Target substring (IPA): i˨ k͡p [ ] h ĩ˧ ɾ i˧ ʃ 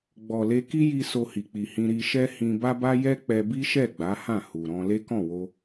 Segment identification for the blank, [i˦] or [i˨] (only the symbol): i˨